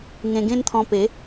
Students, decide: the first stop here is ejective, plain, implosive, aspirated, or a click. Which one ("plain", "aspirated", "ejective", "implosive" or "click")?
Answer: plain